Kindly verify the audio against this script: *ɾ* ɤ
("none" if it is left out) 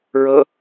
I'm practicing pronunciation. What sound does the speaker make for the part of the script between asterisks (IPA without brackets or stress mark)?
ɹ